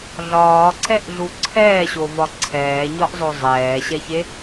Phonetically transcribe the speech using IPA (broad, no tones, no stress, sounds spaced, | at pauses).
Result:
ɮ ɒː ǀ ɛ ʔ ɮ u ǀʰ ɛː ɕ o v ɒ ǀʰ ɛː ɲ ɒ ʔ zˤ o zˤ ɛː ɕ ɛ ç e